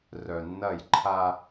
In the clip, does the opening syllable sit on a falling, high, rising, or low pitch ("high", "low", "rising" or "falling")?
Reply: low